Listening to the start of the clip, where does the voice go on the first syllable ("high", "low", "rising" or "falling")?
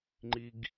high